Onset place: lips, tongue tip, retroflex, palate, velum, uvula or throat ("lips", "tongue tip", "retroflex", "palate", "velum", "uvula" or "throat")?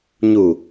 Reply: palate